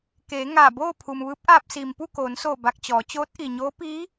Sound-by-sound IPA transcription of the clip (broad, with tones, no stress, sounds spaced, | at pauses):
k eː˩˧ ŋ aː˧˩ b oː˥˨ pʰ u˩ m ʋ ɯː˧˥ p̚ ʔ aː˧ p̚ s iː˩ m p u˥˨ k oː˩˧ n s oː˧˩ b a˧˩ k̚ t͡ɕ ɔː˩˧ t͡ɕ oː˧˥ t̚ ʔ i˩ ɲ oː˧˥ p iː˧˥